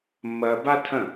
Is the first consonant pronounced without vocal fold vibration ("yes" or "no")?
no